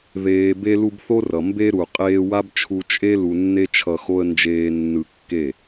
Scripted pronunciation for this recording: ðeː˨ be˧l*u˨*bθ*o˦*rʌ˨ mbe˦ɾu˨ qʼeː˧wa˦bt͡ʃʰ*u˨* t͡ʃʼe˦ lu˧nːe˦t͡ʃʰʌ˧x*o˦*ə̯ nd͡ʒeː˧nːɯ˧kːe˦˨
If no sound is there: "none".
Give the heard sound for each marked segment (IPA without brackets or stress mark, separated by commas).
u˧, o˦, u˧, o˦